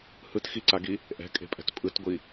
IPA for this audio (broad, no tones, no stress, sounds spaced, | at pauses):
h ɯ t x i ǀ a ɡ i | ʔ ɛ̤ kʼ e̤ pʼ ɛ̤ t pʼ ɯ t ɡʷ i